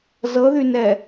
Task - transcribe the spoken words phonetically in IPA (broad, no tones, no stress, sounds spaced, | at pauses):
z ɤ ð y n ɛ